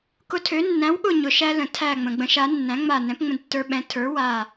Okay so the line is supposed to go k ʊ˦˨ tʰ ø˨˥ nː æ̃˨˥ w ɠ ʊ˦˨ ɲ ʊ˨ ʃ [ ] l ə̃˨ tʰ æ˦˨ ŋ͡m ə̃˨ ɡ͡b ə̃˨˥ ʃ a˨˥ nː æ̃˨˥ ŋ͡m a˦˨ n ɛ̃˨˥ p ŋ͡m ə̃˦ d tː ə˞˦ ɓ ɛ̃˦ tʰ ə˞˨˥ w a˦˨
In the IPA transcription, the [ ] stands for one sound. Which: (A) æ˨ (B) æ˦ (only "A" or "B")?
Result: B